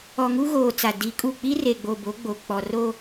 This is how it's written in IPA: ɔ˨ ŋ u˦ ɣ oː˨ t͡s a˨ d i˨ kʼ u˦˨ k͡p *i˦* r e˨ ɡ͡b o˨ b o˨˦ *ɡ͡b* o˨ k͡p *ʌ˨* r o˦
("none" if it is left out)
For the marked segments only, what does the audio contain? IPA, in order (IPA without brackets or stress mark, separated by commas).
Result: i˦, ɡ͡b, ɔ˨